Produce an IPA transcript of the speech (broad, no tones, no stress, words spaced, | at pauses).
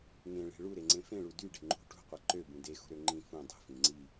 ŋẽɭe̤ ɭuɾeŋ͡ǀẽ fẽɭu dyɖe̤ ŋ͡ǃṳ ʈṳqʷe ǃøbũ dexṳɾø ŋ͡ǃĩ fũ dˤṳfĩ ŋ͡ǀi